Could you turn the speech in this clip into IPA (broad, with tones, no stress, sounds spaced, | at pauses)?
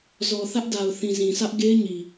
z ɔ˨ θ ä˦ ʔ d a˨ ʊ̯ θ ĩ˨ z ĩ˨ s ä˦ ʔ ɡ e˦ ɪ̯ ɲ i˨